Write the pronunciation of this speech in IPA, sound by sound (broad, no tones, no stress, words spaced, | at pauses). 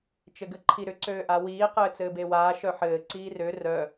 t͡ʃɘɡɘǃʰiɾʏ ǀøːʔawiː qɘːt͡sɘːbewaː ʃœħɘː ǀiːrø rœ